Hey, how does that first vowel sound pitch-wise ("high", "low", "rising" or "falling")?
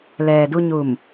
low